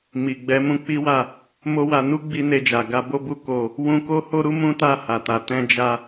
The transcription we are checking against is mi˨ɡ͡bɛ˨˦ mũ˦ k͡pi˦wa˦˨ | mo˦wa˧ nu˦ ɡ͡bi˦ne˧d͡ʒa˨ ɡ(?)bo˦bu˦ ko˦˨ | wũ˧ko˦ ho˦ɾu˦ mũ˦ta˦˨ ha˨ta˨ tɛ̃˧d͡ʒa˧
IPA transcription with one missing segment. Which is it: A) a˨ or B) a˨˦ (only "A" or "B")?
B